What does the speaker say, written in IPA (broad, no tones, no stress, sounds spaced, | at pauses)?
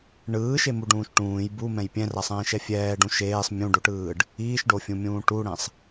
ɳ ɯː ʃ e m u ɖ ũː ʃ ʈ ũː j b u m ɛ̃ j pʲ ɛ̃ r a sˤ ɛ̃ː ʃ ɛ fʲ ɛː ɖ ũ ʃ eː sˤ mʲ ũ ɖ o ʈ ɯː ɖ | iː ʃ ɖ o fʲ ũ mʲ ũː ʈ u ɽ ɛ̃ sˤ